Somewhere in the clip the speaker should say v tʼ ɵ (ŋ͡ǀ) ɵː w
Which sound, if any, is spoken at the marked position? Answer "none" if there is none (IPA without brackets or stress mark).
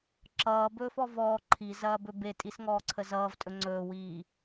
ŋ͡ǀ